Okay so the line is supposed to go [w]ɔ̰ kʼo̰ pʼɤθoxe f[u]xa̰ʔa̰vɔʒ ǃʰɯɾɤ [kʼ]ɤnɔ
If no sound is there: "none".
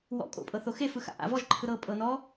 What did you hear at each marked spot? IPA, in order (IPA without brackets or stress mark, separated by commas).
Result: w, ɯ, pʼ